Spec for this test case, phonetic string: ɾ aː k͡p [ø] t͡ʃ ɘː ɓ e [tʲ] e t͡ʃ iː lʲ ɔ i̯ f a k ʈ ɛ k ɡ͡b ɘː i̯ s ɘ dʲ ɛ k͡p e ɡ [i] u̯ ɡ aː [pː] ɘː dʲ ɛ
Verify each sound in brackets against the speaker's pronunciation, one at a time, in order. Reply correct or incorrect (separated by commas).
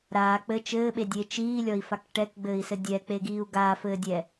incorrect, incorrect, incorrect, incorrect